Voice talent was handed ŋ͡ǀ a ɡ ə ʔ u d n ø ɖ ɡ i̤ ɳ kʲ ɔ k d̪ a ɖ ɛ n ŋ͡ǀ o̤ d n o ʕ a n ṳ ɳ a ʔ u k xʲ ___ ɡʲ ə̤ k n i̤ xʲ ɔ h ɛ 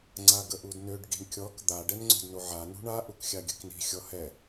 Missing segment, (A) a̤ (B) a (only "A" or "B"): B